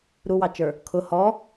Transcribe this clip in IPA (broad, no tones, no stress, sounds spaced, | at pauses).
ɾ u w ɑ t͡ʃ ə˞ | kʰ ʊ h ɔ